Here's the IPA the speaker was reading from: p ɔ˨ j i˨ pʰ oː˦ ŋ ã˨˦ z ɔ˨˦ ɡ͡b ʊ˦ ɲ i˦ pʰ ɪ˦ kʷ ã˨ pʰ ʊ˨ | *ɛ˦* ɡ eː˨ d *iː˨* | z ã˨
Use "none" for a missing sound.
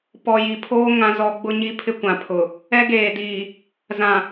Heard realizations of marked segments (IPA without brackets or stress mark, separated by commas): ɛ˦, iː˨